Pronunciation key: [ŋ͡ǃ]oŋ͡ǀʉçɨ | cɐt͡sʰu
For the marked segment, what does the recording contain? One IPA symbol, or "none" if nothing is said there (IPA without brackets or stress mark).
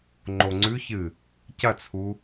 ŋ͡ǃ